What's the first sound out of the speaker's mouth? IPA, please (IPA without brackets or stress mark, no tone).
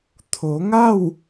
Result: t̪ʰ